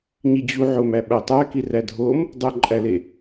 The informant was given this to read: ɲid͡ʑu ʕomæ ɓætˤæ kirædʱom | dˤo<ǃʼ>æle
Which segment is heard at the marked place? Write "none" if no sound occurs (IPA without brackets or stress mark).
ǃʼ